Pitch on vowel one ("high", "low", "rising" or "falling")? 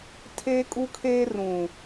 high